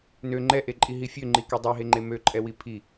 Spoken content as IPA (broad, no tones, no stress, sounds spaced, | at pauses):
n ø ŋ͡ǃ ɛ ʔ e ǃʼ i ɦ i fʲ ø ŋ͡ǃ i k e dˤ i ɦ e ŋ͡ǃ e m ø ǃʼ ɛ w i pʰ i